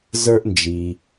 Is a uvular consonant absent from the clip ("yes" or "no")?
yes